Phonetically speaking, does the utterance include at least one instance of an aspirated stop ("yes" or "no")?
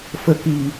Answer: no